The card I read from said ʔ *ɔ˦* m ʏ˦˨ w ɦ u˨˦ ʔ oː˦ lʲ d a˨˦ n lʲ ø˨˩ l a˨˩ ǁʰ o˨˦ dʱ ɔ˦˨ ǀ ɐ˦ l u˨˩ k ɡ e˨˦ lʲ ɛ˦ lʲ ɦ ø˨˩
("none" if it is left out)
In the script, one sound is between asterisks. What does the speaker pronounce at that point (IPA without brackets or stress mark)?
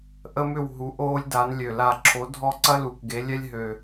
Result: ə˦